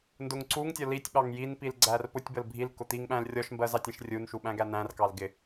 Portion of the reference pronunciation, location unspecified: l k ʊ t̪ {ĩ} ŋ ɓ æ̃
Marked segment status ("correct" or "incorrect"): incorrect